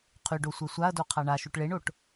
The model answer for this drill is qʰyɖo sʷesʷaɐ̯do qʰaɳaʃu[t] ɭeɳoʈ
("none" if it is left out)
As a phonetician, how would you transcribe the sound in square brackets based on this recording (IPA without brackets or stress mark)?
ʈ